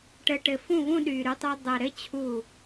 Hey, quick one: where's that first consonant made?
retroflex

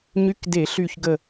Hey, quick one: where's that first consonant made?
palate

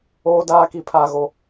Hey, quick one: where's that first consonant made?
tongue tip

